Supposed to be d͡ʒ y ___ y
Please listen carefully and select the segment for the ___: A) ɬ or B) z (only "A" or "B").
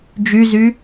B